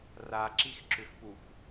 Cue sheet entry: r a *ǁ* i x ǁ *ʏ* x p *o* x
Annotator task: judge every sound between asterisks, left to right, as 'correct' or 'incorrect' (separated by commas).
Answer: correct, correct, incorrect